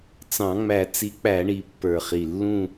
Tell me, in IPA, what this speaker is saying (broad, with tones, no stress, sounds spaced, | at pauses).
t͡s ɑ̃˨˩˦ ŋ͡m æ˨˩˦ t͡s i˨˥ k͡p æ˨˩˦ ɳ i˨˩˦ pː ə˞˨˩ χ i˨˩ lː ũ˦˨